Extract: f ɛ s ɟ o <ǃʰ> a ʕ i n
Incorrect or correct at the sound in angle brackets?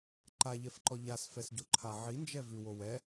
correct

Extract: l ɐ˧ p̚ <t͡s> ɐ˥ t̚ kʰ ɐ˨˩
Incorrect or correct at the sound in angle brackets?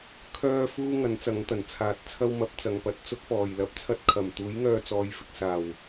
incorrect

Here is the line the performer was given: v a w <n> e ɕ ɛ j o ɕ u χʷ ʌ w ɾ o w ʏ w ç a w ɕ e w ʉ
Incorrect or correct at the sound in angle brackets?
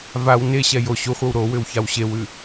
correct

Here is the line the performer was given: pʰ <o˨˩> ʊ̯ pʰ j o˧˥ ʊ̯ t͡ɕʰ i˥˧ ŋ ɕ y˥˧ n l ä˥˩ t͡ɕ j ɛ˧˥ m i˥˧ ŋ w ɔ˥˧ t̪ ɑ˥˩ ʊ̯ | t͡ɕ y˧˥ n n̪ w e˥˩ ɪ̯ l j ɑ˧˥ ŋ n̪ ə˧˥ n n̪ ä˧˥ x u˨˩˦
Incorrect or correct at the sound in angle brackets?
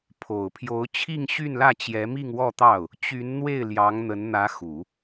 correct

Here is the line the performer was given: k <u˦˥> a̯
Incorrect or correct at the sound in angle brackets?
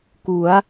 incorrect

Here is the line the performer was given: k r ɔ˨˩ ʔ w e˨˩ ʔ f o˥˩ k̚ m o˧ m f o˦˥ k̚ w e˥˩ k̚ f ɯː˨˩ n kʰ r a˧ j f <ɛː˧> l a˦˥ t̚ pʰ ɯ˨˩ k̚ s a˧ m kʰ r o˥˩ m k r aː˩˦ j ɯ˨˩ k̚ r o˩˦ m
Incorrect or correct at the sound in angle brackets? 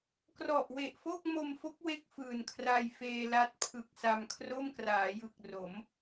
incorrect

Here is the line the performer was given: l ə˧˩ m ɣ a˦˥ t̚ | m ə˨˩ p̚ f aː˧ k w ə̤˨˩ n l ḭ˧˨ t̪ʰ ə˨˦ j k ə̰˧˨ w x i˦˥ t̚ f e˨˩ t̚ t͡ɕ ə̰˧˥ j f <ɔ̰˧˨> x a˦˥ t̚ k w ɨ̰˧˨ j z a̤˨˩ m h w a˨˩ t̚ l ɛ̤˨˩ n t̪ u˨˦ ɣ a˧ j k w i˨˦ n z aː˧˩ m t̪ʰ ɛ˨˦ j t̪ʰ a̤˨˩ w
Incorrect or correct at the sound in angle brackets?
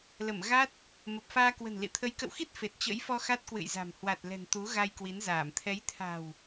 incorrect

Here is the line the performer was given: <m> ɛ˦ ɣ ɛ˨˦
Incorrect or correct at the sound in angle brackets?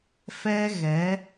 incorrect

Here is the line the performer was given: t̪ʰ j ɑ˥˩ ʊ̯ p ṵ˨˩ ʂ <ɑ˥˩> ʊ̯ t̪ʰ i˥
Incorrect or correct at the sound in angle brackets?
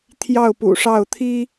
correct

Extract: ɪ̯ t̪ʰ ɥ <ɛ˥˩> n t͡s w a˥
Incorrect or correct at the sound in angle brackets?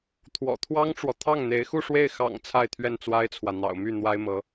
correct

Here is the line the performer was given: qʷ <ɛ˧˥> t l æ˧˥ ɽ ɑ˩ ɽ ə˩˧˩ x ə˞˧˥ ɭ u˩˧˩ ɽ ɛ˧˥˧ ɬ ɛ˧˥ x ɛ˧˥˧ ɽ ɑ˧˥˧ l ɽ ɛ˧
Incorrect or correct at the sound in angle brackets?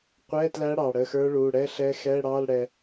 incorrect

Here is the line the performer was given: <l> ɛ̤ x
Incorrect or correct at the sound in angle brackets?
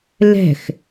correct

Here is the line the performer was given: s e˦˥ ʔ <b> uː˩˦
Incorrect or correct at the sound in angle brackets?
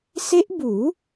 correct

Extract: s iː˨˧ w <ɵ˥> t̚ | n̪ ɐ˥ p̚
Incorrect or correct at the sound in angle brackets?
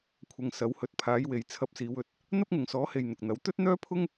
incorrect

